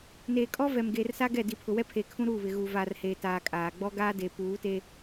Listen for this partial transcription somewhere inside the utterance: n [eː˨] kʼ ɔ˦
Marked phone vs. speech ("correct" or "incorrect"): correct